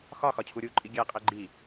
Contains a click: yes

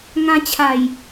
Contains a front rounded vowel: no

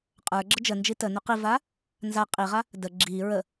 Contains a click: yes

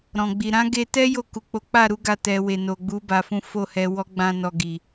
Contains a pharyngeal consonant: no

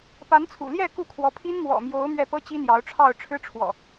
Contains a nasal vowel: no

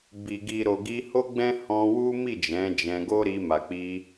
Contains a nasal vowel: yes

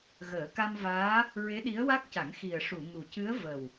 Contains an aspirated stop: no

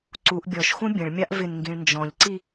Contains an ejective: no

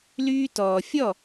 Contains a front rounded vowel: yes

